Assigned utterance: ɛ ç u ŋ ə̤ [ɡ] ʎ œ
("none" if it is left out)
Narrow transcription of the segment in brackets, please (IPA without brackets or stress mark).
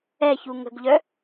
ɡ